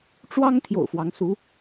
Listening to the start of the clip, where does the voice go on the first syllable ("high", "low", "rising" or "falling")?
high